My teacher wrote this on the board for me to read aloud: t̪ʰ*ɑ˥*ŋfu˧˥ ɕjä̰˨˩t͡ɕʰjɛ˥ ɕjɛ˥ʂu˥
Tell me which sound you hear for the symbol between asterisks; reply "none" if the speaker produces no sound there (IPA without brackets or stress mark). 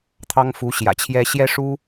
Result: ɑ˥